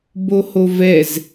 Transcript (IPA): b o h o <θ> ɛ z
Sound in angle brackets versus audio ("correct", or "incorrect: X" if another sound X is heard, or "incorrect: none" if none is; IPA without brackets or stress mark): incorrect: v